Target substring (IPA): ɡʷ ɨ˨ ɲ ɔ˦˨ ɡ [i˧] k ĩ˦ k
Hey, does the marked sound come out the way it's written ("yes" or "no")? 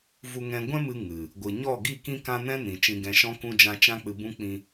no